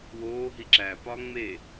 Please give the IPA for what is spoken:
w oː ɦ i ǁ æ p ɒ ŋ͡m e

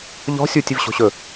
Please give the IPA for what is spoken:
ʎ ɔ̤ sʲ u tʲ ɪ v ɕ o̤ ɕ ɵ

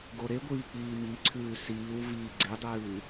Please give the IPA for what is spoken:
ɡ o ɾ e ɡʷ iː k͡p iː m i ǀʰ ʉː s iː w v iː ɡ͡ǀ e dˤ ɨː

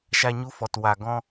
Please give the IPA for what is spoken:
ʃ a˧ ɲ u˧ f ɔ˨ t w a˨ ɡ ɔ̃˧

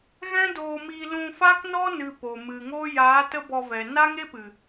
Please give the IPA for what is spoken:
ɣ ɛ̃˦ d oː˧ m iː˧ l ũ˧ f a˦ k n ɔ˦ n ɨ˨ p o˨ m ɨ˨ ŋ o˦ j aː˨˦ t ə˦ b ɔ˧ v ɛ˨ n a˦ ŋ e˦ p ɨ˨

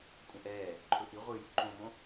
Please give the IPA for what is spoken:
kʷʼ ə̃ ʔ ɛː | ǃʰ ɵ ʔ i ʁʷ ɨ j u ǃ õ m õ

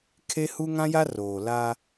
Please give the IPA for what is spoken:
kʰ e˦ h u˦ ŋ ã˦ j a˦ r oː˨ l aː˦

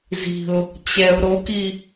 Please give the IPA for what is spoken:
z i̤ ʊ̯ | t͡ɕ ɛ ʊ̯ ɾ o k i

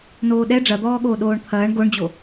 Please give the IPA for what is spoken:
n oː ɗ ɛ ɖ͡ʐ ɐ d̪ ɔː ɠ oː ɗ oː ɳ t̪ʰ ɐː ɳ ɡ o ɳ d͡ʑ o

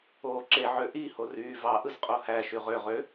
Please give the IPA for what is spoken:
oː ǁ e ʕ ø ʔ i h o r yː v ɑ ʔ ɯ z qʼ o h æ ʃ y ʁ ø ʁ ø

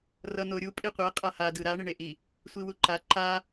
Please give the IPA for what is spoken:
r ʌ n̪ o ɾʲ u pʼ i qʷ e qʼ a h a d ɯ ɾ a ɳ e ɳ e ʔ i | sʷ i w u ǃ a ǃ a

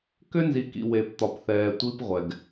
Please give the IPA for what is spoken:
k ʏ˦ n z i˨ k ḭ˨ w e˨ p t̪ ɒ˨ p θ ɛː˨ tʷ i˦ p ʁʷ ɛ˨ ɡ

